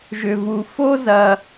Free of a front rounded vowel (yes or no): no